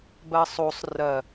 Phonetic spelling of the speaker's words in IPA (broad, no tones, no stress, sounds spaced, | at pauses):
b ɜ sˤ o sˤ r ɜ